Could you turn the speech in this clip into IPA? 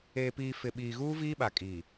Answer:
eː˨piː˨ fɪ˨ɓiː˨ɣuː˦ viː˦ɓa˨kʼiː˨

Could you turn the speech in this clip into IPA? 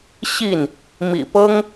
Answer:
ɕi˥˨n | mḭ˨˩pɤ˦ŋ

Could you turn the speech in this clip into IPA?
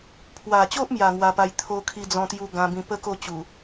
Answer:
pʰwa˨˩t͡ɕo˦ʔmja˨˩ ŋwa˧pa˧j t̪ʰo˧kʰi˧ d͡zɔ̃˧t̪ju˧ ɡã˧bĩ˧ pə˥˧ko˥˧ t͡ɕu˨˩

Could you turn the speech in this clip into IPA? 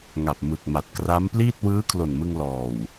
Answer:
ŋa˨˩p̚mɯ˨˩k̚ ma˨˩t̚kra˦˥mpliː˥˩t̚ wɯː˦˥kʰlo˨˩nmɯ˧ŋ lɔː˨˩w

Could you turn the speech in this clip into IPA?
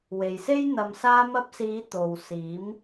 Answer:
we˨jse˥j n̪ɐ˨msaː˧mɐ˧p̚siː˨˧ t̪o˨w siː˨˥m

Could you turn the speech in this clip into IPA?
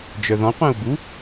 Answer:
d͡ʒœðɔ̃ qʷɛ̃u̯bu

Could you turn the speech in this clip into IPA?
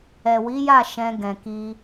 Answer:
ɛ˨wi˨˦ja˦˨ ʃɛ̃˧ ɡɛ̃˨ki˧

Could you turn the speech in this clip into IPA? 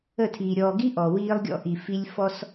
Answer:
ə˦˨tʰiː˨ ɾʲɔː˨ɡi˦ ʔɔ˨wiː˦lˠɡʲɔ̰˦ ʔi˨fi˦lʲ fɔ˦s

